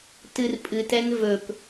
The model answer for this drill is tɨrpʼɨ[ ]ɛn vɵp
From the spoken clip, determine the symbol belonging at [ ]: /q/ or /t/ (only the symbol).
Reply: t